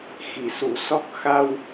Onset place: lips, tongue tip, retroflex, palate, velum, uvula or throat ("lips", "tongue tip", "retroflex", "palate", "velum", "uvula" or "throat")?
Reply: velum